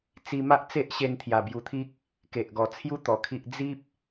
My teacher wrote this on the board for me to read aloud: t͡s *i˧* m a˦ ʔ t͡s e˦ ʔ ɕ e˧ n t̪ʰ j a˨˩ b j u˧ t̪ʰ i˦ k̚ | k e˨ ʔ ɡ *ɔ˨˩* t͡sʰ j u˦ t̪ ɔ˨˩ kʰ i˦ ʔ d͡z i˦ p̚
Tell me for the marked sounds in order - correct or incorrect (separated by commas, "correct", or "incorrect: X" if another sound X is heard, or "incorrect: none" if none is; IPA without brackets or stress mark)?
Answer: correct, correct